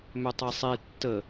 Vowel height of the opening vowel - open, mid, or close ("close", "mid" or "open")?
close